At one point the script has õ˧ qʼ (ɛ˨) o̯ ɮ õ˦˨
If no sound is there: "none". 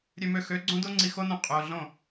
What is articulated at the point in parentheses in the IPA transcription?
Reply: ø˨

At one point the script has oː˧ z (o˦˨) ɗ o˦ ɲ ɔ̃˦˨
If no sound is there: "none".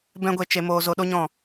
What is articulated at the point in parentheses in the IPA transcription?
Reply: o˧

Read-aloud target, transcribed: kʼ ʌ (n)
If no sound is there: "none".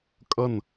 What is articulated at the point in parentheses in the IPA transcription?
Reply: n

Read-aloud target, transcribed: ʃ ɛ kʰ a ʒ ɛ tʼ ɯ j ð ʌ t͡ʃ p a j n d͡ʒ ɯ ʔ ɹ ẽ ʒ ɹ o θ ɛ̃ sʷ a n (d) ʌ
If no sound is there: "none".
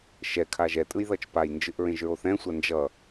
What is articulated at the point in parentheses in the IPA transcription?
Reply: d͡ʒ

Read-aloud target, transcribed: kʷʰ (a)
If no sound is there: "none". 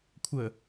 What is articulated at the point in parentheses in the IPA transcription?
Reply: ə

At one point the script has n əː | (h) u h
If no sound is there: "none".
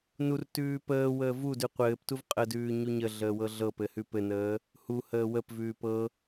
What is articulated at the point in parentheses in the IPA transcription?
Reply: h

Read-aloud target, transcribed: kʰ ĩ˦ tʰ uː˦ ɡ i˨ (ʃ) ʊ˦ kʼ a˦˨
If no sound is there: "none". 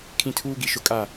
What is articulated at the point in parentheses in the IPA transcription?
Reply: ʃ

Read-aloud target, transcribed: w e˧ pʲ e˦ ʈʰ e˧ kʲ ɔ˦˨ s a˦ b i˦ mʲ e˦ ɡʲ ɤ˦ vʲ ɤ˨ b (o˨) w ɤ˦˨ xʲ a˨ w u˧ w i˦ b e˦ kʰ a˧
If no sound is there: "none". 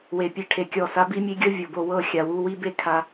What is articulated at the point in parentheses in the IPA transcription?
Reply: o˧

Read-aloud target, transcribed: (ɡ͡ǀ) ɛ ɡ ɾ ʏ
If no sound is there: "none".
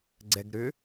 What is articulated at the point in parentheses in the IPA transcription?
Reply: ɡ͡ǀ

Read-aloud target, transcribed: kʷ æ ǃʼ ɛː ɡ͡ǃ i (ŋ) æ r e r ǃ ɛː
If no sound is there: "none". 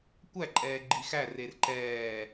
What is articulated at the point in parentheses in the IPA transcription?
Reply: x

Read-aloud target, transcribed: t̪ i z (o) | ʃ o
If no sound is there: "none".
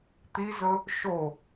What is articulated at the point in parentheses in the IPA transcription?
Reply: ɵ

